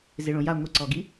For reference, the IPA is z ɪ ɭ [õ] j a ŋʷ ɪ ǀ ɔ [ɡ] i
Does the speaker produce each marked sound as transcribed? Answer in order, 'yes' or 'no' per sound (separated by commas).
yes, yes